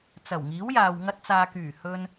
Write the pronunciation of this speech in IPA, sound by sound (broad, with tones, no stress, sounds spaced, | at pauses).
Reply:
t͡s ɐ˨˩ w ŋ iː˨˥ w j aː˨ w ŋ ɐ˧ t̚ t͡s aː˨ k yː˨˩ h ɵ˧ n